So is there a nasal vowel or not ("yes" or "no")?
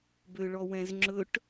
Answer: yes